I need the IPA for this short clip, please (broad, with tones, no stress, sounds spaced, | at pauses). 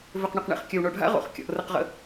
v ʏ˨ q ɳ ʏ˨ q ɳ ḛ˨ χ kʲ ɐ˨ w ɳ o˨ ɖʱ a̰˦ ʁ o̰˨ χ kʲ ɔ̰˨ ʔ r ə˨ q ʁ ə̰˨